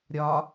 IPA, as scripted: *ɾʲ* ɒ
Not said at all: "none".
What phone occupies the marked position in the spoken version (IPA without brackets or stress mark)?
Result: ɾʲ